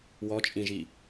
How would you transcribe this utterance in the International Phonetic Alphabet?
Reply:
w ɔ t͡ʃʼ ĩ ʒ i

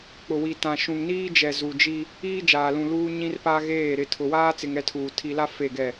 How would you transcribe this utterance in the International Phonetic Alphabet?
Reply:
k͡p ʊ˨ w i˨ t ã˨ ʃ ũ˨ ŋ n iː˦ d͡ʒ ɛ˨ z u˨ d͡ʒ i˦ | iː˦ d͡ʒ aː˨ l ũ˨ l uː˦ ɲ ĩ˦ r p a˦ ɣ eː˦˨ ɾ ɪ˦˨ tʰ ʊ˨ w aː˦ t͡s ɪ˨ ŋ ɛ˦ tʰ uː˨ tʰ i˨ l a˦ f e˦˨ ɡ ɛ˦˨

